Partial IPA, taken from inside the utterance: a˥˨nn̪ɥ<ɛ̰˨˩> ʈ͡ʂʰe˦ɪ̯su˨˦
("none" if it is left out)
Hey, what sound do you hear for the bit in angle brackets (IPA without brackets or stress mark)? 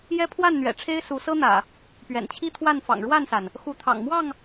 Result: ɛ̰˨˩